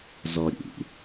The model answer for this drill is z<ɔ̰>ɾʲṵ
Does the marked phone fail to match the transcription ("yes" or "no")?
yes